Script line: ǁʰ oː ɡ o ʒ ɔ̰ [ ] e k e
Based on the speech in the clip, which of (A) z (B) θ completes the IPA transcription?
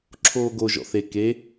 B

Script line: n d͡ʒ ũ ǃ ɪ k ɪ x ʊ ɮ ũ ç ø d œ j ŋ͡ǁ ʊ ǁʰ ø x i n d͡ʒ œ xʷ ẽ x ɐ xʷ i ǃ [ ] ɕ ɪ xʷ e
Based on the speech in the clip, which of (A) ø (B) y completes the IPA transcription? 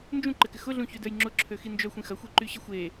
B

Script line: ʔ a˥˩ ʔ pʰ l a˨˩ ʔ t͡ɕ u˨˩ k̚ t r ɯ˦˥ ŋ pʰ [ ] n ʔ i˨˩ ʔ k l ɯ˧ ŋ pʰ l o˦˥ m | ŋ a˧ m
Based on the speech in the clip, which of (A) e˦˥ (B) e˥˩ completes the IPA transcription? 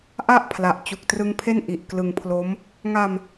B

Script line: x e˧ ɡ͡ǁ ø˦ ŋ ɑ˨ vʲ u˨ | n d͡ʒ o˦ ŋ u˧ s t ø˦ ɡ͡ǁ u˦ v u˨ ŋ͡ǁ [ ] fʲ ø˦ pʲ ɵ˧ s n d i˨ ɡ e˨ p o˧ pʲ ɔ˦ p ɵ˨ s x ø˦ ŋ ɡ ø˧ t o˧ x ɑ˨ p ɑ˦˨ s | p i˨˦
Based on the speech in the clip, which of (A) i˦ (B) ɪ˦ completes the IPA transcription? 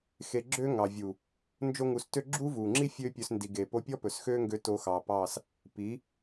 A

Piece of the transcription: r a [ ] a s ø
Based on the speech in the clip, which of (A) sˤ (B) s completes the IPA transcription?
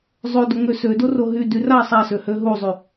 A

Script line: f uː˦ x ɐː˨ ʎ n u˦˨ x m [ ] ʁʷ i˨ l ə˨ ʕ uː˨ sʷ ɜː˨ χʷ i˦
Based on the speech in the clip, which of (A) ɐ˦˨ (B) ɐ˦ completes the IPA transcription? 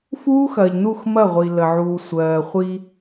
A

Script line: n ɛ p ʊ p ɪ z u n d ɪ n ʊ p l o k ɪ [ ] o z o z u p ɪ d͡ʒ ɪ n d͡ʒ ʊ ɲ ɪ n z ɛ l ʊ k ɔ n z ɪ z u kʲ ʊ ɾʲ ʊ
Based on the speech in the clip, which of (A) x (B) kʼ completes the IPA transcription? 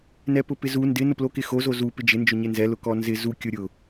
A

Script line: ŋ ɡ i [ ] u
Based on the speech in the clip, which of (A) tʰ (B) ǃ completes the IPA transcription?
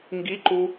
B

